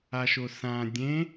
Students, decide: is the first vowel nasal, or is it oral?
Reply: oral